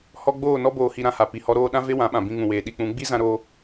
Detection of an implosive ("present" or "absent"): present